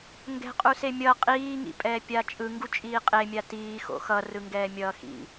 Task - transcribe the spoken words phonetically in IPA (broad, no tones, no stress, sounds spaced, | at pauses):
ŋ ɡ ɛ̤ qʼ u s e mʲ ʌ qʼ iː ŋ ḭ pʼ ɛː pʲ a t͡ʃʼ ɯ ŋ ɡ u t͡ʃʼ iː qʼ e mʲ a t iː x o̰ x ʌ r ɯ ŋ ɡ ɛː mʲ ʌː x ḭ